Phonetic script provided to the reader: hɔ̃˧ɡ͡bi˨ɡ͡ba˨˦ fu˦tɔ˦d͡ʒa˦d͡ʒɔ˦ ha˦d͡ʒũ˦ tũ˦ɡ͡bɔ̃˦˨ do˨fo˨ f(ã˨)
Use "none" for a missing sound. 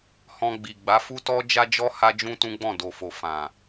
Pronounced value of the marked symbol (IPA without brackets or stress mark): ã˨